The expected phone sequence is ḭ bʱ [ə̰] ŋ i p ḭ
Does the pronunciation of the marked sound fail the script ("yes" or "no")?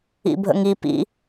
no